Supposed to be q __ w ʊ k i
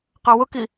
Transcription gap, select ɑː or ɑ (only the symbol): ɑ